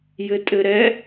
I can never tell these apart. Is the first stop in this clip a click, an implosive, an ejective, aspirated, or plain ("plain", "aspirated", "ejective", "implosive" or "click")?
ejective